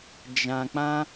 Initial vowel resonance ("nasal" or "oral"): nasal